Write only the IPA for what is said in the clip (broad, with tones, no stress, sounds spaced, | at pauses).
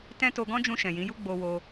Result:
t ɛ̃˦ t o˧ ɡ ɔ̃˦ d͡ʒ ũ˧ ʃ ɛ̃˨ j ĩ˨˦ j u˦ ɡ͡b o˧ w o˧